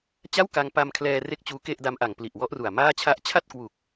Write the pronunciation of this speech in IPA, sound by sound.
t͡ɕ a˥˩ w k a˧ ŋ p a˧ m kʰ l ɛː˧ r e˥˩ k̚ t͡ɕ uː˦˥ k e˥˩ ʔ d a˦˥ m ʔ a˨˩ ŋ p l i˨˩ ʔ w ɔ˦˥ ʔ r u˨˩ a̯ m aː˥˩ t͡ɕʰ a˦˥ ʔ t͡ɕʰ a˥˩ t̚ k w u˨˩ k̚

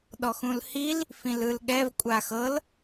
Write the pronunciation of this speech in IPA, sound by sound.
ɗ ɔ x ũ l h i l | f ĩ l ɯ l ɠ ɛ v kʷʼ a x ɤ l

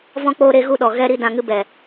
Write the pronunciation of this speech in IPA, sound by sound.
v ɔ̃˧ k͡p oː˧ ɾ e˦ ɣ u˦ ɗ ɔ˨ ɣ ɛ˦˨ ɾ i˦ d ã˨ ŋ ɨ˧ b ɛ˨

